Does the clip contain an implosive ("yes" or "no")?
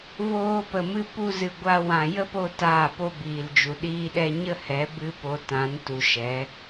yes